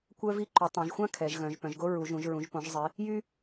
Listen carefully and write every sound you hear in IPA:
kʷ œ˥ v i˥ ǃ u˩˧ tˤ ã˩˧ ʒ xʷ ã˥ kʰ ɛ˩˧ ʒ ɣ œ̃˩˧ ʒ p œ̃˩˧ ʒ ɡ o˥ ɹ u˩˧ ʒ ũ˩˧ ʒ ɹ ũ˩˧ ʒ p õ˩˧ ʒ zˤ i˩˧ | j y˥

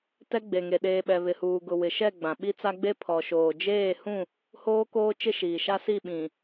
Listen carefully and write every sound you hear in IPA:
t ɛ˦ ɡ͡b e˨ ŋ e˨ ɗ eː˨ ɓ ɛ˨ β ɪ˨ h uː˨ ɡ ʊ˨ w ɪ˨ ʃ ɛ˦˨ ɡ͡b ã˨ ɓ i˦ t͡s a˦ ɡ͡b e˦ pʰ ɔ˨ ʃ oː˨ d͡ʒ eː˦˨ h ũ˦˨ | h oː˦ k oː˦ t͡ʃ ɪ˦ ʃ iː˨ ʃ a˦ s i˦˨ ɓ ĩ˨

